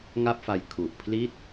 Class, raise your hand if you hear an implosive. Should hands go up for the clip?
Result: no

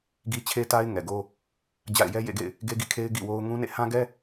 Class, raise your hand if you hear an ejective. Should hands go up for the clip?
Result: no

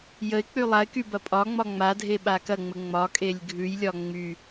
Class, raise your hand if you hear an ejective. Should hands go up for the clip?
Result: yes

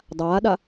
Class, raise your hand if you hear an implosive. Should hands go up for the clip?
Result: yes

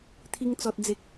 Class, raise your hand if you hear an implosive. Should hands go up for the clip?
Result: no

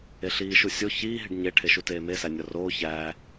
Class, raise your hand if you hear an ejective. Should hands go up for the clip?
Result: no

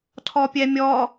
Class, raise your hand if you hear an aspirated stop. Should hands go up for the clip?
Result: yes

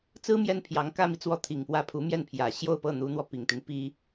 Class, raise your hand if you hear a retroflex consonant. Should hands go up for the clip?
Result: no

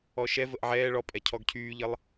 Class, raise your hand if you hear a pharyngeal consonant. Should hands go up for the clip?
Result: yes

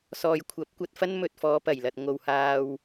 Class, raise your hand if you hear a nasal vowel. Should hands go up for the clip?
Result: no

